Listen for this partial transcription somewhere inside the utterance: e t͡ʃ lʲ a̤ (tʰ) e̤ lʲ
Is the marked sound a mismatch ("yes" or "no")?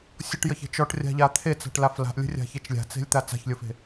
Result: yes